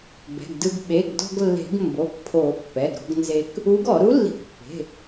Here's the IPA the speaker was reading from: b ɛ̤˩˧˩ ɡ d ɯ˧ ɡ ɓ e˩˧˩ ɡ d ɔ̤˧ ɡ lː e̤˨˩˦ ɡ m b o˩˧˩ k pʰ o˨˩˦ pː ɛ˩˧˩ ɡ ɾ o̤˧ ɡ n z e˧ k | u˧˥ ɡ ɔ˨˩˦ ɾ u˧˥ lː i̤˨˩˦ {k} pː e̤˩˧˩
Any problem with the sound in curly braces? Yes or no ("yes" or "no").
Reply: no